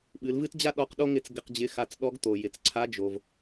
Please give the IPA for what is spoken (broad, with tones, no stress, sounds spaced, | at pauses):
ɓ ɨ˩˧ l v ɨ˥ t d͡ʑ a˥ ɗ ɔ˧ q ɗ o˥ ŋ ɪ˧ t͡s ɡ ɪ˧ q d͡ʑ ɪ˧˥ x a˧ t͡s ɗ ɔ˧˥ ɡ t̪ o˩ j ɪ˩ t͡s ǀʰ a˧˥ d͡ʒ o˩ v